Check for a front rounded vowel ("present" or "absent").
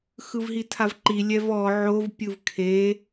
absent